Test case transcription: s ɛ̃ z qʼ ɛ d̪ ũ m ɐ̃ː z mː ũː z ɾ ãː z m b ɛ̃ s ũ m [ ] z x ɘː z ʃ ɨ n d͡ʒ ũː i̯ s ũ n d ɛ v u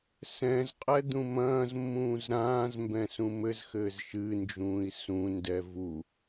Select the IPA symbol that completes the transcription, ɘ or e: ɘ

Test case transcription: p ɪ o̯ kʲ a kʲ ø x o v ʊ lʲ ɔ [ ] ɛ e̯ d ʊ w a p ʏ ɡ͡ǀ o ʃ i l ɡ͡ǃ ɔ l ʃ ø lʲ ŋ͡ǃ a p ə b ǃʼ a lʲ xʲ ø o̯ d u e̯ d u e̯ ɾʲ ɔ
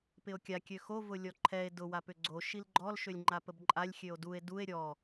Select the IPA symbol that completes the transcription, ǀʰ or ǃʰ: ǃʰ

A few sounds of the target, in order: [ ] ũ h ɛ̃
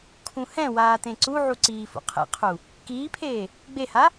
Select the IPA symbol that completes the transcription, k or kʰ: kʰ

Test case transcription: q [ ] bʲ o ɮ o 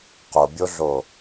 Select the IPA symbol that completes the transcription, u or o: o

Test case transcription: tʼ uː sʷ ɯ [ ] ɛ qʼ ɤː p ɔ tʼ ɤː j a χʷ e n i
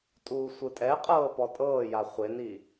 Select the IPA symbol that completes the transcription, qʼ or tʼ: tʼ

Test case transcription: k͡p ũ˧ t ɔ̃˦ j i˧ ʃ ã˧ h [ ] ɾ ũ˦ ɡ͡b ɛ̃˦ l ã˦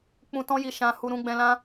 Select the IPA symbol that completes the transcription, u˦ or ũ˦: u˦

